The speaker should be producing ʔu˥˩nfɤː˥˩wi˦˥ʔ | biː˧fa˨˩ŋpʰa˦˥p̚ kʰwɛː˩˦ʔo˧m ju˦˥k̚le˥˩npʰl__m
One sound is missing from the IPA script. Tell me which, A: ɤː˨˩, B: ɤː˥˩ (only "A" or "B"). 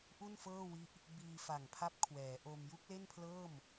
B